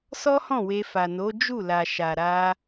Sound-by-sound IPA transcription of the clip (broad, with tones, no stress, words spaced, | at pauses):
sɔ˦hɔ̃˦˨we˧fa˨ no˨˦d͡ʒu˦˨ la˨ ʃa˨ɾa˧